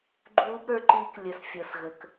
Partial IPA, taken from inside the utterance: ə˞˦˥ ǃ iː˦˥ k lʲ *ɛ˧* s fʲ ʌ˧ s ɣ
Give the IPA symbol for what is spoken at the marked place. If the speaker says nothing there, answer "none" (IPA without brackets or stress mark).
ə˧